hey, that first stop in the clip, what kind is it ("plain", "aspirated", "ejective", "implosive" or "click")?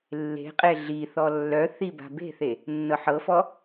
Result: ejective